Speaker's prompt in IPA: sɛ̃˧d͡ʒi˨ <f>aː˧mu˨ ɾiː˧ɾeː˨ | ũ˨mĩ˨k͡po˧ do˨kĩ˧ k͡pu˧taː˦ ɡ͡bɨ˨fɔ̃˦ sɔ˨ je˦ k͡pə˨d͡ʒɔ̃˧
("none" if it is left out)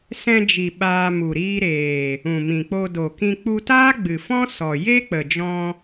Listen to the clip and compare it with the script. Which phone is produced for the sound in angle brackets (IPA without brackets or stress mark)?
ɓ